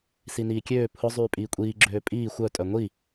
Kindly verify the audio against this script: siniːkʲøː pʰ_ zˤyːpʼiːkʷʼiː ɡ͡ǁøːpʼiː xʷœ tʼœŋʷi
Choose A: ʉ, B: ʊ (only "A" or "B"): B